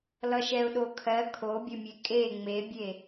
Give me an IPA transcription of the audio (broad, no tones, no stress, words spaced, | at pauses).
lʌʃɛʊ̯ɗokʰɜ kʰobʲɵmʲe kʼe ŋ͡mebʲe